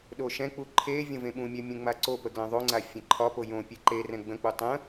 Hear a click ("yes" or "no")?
yes